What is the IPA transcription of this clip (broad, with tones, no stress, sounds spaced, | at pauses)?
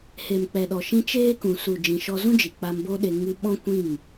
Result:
h e˨ m k͡p ɛ˨ ɗ ɔ˨ ʃ ĩ˧ t͡ʃ eː˦ k ũ˨ s u˨ d͡ʒ ĩ˨ ʃ ɔ˧ z ũ˦ d͡ʒ i˨ k͡p a˧ m b o˦ ɗ e˧ ŋ ɨ˧ ɓ ɔ̃˦ kʷ ĩ˦˨ ŋ